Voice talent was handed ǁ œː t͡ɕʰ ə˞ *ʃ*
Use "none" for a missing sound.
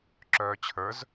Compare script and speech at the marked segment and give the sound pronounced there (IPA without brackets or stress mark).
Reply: z